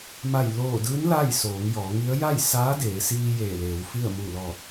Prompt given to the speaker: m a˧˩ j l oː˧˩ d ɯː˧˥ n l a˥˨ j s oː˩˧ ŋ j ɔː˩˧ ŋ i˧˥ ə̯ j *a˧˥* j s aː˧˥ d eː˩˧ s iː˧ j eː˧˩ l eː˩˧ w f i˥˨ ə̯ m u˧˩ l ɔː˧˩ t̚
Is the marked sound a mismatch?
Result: yes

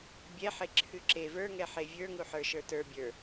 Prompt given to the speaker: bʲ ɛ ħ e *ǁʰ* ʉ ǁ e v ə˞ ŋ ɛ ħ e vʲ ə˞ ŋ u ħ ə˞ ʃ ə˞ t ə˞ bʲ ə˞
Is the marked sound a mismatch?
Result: no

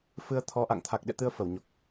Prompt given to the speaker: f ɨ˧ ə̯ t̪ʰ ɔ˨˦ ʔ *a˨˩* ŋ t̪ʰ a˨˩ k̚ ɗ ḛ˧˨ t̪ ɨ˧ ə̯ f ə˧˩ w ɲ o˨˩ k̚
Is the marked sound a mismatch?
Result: yes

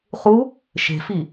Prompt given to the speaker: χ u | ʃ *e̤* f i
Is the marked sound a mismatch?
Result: no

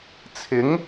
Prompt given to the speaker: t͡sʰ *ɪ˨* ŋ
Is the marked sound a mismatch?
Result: yes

